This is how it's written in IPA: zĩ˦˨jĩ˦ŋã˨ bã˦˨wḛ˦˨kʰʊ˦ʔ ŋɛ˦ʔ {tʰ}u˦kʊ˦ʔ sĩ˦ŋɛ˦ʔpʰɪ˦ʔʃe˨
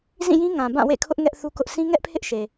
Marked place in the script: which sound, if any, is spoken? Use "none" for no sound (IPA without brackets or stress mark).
θ